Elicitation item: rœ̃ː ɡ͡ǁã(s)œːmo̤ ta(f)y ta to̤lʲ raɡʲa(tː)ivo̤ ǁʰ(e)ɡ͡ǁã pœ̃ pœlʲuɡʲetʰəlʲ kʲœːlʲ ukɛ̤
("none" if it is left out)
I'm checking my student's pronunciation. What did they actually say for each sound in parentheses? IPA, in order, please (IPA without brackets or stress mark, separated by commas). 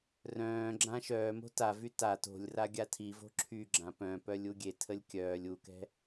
ʃ, v, tʰ, y